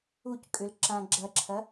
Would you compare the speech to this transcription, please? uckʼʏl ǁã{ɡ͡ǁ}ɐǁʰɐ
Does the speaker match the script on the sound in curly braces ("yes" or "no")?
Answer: yes